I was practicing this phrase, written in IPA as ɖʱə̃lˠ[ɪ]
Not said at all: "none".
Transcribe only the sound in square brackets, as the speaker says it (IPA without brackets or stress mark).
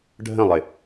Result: ɪ